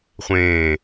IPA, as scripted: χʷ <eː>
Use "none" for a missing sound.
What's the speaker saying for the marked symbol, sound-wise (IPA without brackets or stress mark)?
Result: ẽː